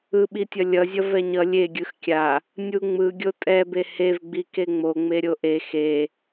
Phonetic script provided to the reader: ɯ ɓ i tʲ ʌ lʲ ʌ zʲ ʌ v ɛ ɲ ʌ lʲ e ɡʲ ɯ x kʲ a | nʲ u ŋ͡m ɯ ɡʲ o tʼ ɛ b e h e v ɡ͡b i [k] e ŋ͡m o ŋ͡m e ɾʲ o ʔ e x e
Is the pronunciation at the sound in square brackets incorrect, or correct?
correct